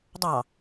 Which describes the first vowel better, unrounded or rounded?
unrounded